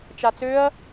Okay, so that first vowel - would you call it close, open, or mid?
open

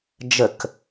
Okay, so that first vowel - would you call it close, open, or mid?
mid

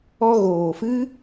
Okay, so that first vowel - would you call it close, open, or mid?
mid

